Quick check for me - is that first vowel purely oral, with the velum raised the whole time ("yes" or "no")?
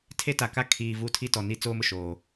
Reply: yes